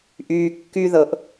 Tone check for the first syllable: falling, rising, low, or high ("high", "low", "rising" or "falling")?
high